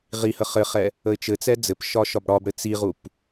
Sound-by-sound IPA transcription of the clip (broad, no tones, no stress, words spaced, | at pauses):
ʁihə χɘχɛ | əɪ̯t͡ʃɘt͡sɛ d͡zɘpʃɒ ʃɒbɽɒbɽɘ t͡siʁup